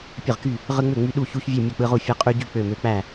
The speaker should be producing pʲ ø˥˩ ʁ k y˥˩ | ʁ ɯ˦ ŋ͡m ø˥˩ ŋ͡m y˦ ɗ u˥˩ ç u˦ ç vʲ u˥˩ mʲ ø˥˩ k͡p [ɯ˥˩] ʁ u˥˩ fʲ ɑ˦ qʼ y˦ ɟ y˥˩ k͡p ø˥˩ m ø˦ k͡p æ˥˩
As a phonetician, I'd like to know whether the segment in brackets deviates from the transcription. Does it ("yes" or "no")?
yes